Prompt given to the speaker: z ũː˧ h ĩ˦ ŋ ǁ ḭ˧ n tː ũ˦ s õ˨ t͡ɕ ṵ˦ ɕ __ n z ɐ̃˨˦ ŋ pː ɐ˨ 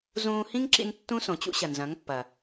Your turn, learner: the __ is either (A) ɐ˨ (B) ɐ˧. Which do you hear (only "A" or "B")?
A